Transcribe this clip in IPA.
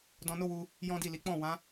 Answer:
dɔ̃˧no˦wu˧ | jɔ̃˦di˦˨li˨˦ k͡pɔ̃˦˨ wã˨˦

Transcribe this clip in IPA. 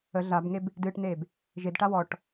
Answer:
ə ɮabŋeb | dɨːʈneːb | ʒedʈa wɔʈ

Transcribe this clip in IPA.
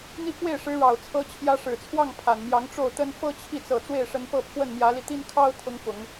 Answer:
n̪i˥˧kwe˥˩ɪ̯ʂɻ̩˧˥ ɻɑ˨˩ʊ̯t͡sʰɤ˧˥t͡ɕʰjä˧˥ ʂɻ̩˨˩t͡sʰwɑ˥˩ŋ pʰa˨˩nmjɑ˧˥ŋ ʈ͡ʂo˥˩ʊ̯t̪ə˥n fɤ˥t͡ɕʰi˥˩ t͡sɤ˨˩ t͡swe˥˩ɪ̯ʂə˧˥n pɤ˥˧pʰwə˥˩nmjä˧˥li˧ t̪i˥n kʰɑ˥ʊ̯ t̪ʰʊ˧˥ŋfʊ˨˩˦ŋ

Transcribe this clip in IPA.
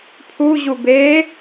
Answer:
pʰuʑu beː

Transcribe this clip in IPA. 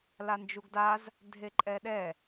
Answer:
land͡ʒuɡdaz | dʱeǃʼɛɗɛ

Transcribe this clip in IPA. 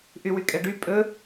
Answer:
ʔywykʼɛɖy pʼɵ

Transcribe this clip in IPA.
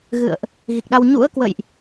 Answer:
ɣɨ̰˧˨ə̯ʔ | ɣi˨˩k̚ɗa˧w ɲṵ˧˥ə̯kwə̰˧˨jʔ

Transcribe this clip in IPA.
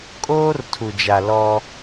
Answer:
kʼoː˦rtʰu˨ d͡ʒa˨lɔ˦

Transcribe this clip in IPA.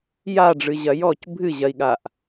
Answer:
jaɖ͡ʐɨʑɐ jɔc bʱɨʑɐi̯ɠaʔ

